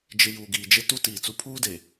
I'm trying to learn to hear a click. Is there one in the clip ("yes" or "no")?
no